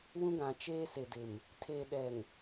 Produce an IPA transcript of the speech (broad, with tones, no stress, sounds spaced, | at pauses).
w ũ˦ ɡ ã˨ t͡ʃ eː˦ s e˨ d ɪ˨ m | tʰ eː˨ ɗ ɛ˨ ŋ